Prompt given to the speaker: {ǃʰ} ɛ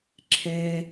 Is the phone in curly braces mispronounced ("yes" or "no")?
yes